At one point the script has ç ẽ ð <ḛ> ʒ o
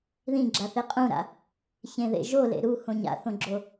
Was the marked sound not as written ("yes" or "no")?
no